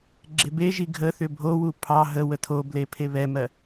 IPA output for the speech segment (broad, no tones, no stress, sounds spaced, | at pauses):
ɡ͡ǁ e b e ʒ i ɡʱ ə θ ʏ bʱ o w u pʰ ɑ ɦ ə w ə tʰ o b l e pʰ e β ɛ m ɜ